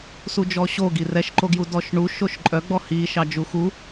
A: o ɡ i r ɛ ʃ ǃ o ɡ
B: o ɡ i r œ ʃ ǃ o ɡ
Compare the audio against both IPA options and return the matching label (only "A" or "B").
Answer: A